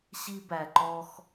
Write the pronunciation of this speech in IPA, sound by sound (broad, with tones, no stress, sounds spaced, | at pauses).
ɕ i˦ b æ˨ ǃ ɔ˧ x